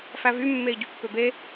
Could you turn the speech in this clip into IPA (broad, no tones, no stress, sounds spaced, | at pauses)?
f æ v y mː e i̯ ɟ y pː ø b e